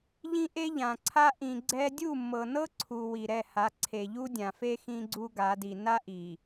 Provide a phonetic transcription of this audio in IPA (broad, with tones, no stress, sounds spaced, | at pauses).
ʎ ĩ˦ ʔ e˦ ʎ ã˨ ǀʰ a˦ ʔ ĩ˨ ɡ͡ǀ ɛ˦ dʲ u˦˨ mː ɤ˨ n ɤ˦ ǀʰ u˨ w i˨ ɾ ɛ˦˨ h a˨˦ ǀʰ e˨ ʎ u˦ dʲ ã˨ f e˦ x ĩ˦ ɡ͡ǀ u˦ ɡ a˨˦ d i˨ n a˦ ʔ i˨